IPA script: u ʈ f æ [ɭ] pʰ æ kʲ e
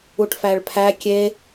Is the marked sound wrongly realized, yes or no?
no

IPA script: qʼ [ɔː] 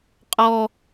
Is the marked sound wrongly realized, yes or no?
no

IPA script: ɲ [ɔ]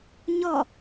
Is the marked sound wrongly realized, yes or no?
no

